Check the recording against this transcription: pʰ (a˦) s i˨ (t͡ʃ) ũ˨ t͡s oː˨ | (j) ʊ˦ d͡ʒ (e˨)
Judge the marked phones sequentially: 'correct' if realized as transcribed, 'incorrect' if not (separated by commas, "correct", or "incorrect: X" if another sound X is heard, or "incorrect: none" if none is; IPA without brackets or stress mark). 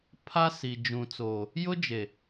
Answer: correct, incorrect: d͡ʒ, correct, correct